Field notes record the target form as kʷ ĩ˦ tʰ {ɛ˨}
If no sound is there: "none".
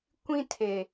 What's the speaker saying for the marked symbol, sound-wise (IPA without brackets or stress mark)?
e˨